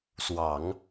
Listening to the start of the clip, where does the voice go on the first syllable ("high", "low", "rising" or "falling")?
low